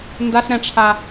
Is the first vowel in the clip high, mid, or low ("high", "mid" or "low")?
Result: low